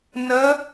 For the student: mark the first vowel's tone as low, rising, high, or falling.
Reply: rising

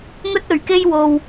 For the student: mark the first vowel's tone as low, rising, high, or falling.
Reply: high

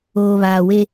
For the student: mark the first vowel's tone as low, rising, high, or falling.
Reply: low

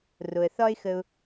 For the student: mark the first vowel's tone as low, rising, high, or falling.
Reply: low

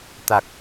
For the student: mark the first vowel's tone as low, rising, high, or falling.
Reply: low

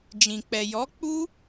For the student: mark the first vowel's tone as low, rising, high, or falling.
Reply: low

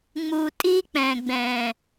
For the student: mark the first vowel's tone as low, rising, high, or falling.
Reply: low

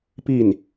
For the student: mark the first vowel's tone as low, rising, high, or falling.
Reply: falling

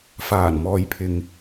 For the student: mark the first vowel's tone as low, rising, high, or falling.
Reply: low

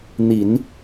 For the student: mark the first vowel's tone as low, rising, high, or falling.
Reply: low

